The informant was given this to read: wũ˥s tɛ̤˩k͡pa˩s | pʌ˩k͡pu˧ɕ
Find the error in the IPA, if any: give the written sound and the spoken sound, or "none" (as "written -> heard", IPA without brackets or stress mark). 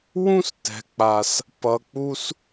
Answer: ɕ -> s